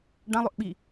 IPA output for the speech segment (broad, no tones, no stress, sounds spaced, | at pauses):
ɖ ã lˠ ɵ ʔ ɓ i